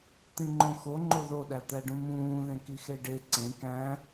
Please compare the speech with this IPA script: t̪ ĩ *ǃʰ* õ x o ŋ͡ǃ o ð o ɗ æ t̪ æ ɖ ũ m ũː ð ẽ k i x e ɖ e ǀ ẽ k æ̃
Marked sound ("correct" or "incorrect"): incorrect